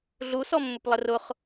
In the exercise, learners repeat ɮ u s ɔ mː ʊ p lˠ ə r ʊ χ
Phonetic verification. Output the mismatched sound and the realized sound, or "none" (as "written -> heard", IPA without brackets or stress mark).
none